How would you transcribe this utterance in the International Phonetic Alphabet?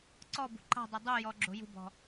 ǀɔbṳ ǃa̤dˤɛ dˤujɔ ɡ͡ǁo̤jṳbɔ̤

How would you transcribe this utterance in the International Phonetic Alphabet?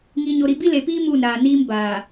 ŋiː˨ɲo˨ɾi˨ bi˦le˨piː˦ muː˦˨nɾaː˨niː˦m baː˨

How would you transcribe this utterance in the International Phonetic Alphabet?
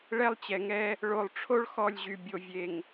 ɭɛ˦lˠt͡ɕɛ˨ŋɛ˦ | ɭo˨lˠʈ͡ʂʰo˦ɭ xɔ˦˨lʲʑy˨ bʲo˨vʲe˨ŋ

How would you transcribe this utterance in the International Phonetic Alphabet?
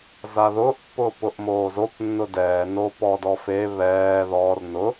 zaðʊːʔpːʊːpʊʔ moːzop nːʊdɛːnoːp ɔdɔfe βɛː ðɔːr nʊ

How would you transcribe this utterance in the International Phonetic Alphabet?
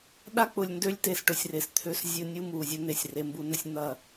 ɗa˦k͡pʊ˨lʲndø˦lʲ te˨sʈʊ˨sʲre˨s t̪ʰø˦s zʲʊ˦nʲu˦mu˨ zʲʊ˦n̪e˨sʲ re˦mbu˦nə˦sʲ n̪ɐ˦˨

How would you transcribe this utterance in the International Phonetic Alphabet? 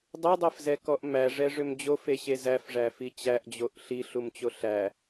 dˤedˤɛfzɛkɔʔ mæʐɛʐʏm d͡ʑofeɕe zæfʐæfi t͡ɕæʔd͡ʑoʔ ɬiɬumt͡ɕo ɬæ

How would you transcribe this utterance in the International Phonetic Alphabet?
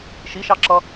ʃiʃɑǁʌ

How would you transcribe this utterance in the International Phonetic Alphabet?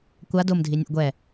kʷa domdʱi nʲṵɡʷɛ

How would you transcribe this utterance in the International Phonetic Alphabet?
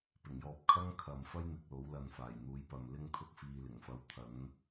pɪ˨˩ŋjɔː˨p̚kʰɐ˥ŋ kʰɐ˨mfɐ˥jn̪ɪ˨k̚lo˨˥w lɐ˨nfaː˨˩j n̪uː˨˥jpɐ˨mlɪ˥ŋt̪ʰʊ˥k̚ fiː˧lɪ˨˩ŋfɐ˧w t̪ʰɐ˨˥n

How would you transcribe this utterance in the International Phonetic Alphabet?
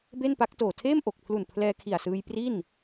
be˥˩npa˦˥k̚ toː˨˩tʰeː˥˩m ʔo˨˩k̚pʰlu˨˩n pʰlɛː˧kʰi˨˩a̯sɯː˧j pri˥˩n

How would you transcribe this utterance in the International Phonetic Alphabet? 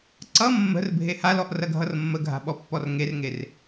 ǀʌ mːə̤r bʱehalɔʔ rɐɡʱʌrmːəɡʱa̤ ɓɔpːɔrŋerŋer

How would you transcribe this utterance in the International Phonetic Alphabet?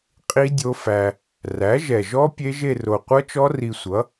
qʼi˦˥ dʲo˦˥fæ˧ | ræ˩˥ʒɛ˨˩ʒɔ˦˥ pʲe˦˥ʒe˥˧ ro˨˩qʷʌ˦˥t͡ʃɔ˦˥ ri˧sʷʌ˩˥

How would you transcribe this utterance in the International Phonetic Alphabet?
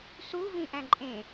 su vĩʔæ̃ǃʼẽ

